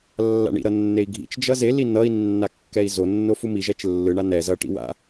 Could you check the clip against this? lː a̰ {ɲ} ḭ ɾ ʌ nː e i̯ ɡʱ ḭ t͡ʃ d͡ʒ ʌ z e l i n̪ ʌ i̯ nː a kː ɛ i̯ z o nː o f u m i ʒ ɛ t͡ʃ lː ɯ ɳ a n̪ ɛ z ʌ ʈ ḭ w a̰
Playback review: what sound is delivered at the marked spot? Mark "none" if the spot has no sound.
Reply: ɳ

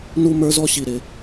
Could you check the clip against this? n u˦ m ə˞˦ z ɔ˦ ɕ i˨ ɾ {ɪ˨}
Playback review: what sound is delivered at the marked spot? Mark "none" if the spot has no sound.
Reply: ɪ˨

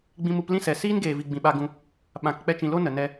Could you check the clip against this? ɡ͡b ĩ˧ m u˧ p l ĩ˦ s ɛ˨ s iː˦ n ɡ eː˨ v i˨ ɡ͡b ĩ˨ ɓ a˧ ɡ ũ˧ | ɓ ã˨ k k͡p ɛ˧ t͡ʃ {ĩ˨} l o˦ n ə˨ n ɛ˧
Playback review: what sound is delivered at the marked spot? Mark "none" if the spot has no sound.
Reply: ĩ˨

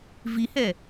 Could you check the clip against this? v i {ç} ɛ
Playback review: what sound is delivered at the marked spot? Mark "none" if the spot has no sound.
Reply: h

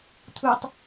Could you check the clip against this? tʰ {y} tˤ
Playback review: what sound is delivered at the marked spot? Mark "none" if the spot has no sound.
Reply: u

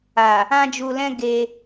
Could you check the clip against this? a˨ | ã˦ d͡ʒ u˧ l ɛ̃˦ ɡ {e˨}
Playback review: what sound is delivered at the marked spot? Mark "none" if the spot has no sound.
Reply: e˧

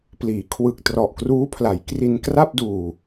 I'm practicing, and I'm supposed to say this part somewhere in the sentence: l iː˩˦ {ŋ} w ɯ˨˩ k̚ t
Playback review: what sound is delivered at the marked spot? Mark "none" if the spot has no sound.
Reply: kʰ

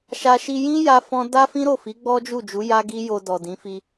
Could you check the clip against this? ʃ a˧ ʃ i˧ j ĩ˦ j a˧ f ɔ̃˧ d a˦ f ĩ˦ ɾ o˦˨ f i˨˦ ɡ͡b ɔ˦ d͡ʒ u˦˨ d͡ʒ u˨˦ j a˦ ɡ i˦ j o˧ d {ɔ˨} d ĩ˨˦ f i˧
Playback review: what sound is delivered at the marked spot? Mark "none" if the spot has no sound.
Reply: ɔ˨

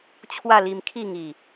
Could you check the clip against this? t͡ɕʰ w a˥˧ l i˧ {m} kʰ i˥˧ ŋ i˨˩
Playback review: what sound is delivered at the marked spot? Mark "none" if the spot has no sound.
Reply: m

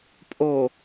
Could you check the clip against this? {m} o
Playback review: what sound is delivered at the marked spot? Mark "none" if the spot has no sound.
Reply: pʼ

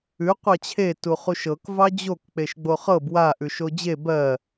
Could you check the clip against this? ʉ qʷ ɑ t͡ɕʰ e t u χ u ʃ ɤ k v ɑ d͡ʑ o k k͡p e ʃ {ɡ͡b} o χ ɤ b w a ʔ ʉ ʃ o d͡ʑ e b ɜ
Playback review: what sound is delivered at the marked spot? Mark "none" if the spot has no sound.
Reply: ɡ͡b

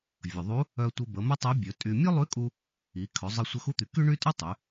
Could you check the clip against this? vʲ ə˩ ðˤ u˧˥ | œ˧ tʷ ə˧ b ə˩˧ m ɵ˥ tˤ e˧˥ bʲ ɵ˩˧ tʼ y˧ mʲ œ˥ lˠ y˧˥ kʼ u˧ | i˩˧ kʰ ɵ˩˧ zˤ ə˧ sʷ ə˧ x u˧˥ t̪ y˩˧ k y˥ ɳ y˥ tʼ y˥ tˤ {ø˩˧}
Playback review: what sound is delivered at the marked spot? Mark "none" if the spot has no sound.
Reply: y˩˧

